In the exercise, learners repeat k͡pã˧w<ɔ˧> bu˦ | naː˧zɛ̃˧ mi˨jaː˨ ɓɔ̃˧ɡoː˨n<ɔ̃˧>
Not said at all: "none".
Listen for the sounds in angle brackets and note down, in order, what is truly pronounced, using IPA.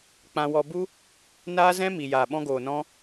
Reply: ɔ˧, ɔ̃˧

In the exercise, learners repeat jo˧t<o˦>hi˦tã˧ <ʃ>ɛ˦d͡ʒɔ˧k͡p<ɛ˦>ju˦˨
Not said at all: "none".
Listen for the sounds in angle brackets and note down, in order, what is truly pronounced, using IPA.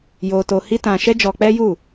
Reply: o˧, ʃ, ɛ˦

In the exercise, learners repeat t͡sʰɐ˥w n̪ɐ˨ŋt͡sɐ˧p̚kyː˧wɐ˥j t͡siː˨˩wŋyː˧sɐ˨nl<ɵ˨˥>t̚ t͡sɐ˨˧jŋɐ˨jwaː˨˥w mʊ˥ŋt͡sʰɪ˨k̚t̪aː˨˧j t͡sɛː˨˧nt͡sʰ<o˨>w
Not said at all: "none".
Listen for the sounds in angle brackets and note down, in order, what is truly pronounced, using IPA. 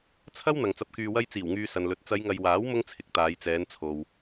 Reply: ɵ˨˥, o˨

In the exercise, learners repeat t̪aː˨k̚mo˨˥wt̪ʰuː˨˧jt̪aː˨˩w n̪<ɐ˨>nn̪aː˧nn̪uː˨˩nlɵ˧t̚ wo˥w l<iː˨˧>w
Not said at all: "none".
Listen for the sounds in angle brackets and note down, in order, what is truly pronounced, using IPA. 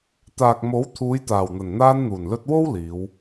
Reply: ɐ˨˩, iː˨˧

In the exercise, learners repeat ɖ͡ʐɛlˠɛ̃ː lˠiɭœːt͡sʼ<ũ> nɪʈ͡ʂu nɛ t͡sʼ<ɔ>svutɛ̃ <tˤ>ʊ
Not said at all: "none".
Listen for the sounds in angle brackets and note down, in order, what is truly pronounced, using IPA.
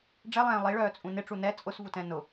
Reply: ũ, ʊ, n

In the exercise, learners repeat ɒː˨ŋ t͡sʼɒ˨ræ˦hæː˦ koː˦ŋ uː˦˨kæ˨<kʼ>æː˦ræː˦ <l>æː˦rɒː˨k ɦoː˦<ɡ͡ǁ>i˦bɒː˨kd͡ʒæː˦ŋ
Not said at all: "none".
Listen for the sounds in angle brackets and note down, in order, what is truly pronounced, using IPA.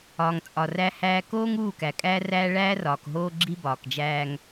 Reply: kʼ, ɭ, ɡ͡ǁ

